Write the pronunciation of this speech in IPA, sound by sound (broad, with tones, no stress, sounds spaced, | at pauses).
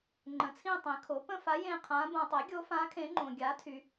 ŋ͡ǃ ə̃˩˥ t͡sʰ ĩ˥˧ tˤ ĩ˩˥ kʰ o˩˥ p ə̃˥˧ f a˧˥ j ẽ˥˧ qʰ ã˧˥ b õ˨ tˤ e˩˥ ɡʲ o˧˥ f ã˧˥ kʰ ẽ˧˥ ŋ͡ǃ õ˨ ɡʲ a˩˥ tʰ y˨